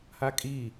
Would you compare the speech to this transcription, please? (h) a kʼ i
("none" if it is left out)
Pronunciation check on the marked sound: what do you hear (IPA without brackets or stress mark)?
h